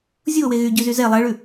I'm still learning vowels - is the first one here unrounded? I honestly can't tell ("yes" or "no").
no